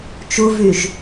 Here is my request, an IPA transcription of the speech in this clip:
t͡ʃuvyʒ

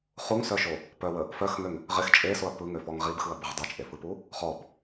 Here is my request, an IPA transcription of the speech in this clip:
χuŋsœʃo | pœwə | fœxŋøŋ | ʁɪx t͡ʃʼesoɐ̯ pɯŋøfɔŋ ʁibxɯɐ̯bəʁ dˤot͡ʃʼefɯpu | χɔb

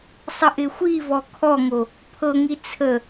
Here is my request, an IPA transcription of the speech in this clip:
sˤəʔɪxʷivɔ kʰɔŋo | pʰɤŋi t͡sʰə

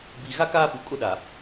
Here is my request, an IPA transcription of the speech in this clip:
bi˦ ɣa˦kaː˦pu˨ kʼʊ˦ɗa˨

